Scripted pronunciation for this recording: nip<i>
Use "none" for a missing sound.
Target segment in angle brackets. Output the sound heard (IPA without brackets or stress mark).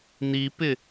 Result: ɪ